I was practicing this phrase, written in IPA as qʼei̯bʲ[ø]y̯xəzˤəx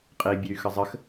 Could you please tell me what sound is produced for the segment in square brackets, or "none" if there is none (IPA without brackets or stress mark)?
ø